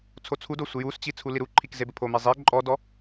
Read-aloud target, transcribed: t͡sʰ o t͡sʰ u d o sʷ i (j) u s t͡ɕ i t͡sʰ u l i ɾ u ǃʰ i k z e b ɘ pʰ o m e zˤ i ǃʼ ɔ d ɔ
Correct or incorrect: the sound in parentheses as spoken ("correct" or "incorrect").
correct